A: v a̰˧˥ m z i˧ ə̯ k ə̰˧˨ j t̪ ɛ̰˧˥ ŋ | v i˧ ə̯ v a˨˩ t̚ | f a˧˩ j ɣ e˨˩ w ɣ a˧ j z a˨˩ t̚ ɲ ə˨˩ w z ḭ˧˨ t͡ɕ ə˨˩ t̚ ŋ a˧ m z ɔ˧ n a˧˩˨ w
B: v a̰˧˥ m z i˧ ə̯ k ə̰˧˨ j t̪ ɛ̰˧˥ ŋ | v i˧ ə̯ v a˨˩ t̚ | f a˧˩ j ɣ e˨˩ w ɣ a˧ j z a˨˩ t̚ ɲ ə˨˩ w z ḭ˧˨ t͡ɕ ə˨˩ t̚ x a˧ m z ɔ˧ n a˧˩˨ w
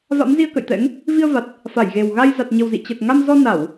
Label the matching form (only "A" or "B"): A